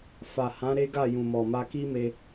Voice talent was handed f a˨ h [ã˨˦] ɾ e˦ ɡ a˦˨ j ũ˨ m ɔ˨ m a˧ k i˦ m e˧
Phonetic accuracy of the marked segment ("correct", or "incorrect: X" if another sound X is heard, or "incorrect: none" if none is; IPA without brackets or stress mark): correct